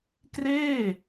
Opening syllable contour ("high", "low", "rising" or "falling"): falling